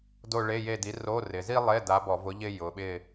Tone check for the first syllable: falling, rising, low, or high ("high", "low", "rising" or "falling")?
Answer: falling